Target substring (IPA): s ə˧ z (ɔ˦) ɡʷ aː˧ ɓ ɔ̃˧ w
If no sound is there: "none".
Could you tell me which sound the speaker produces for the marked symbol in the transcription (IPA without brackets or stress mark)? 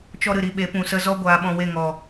ɔ˦